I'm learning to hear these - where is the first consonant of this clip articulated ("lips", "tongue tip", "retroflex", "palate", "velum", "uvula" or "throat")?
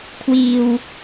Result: velum